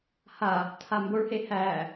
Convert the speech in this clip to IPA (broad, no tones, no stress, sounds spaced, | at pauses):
h a | tʰ a m b o ɭ h e h æ